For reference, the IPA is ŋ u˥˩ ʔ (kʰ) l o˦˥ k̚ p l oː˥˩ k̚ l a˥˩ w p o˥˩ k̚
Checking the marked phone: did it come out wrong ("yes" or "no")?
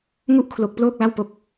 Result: no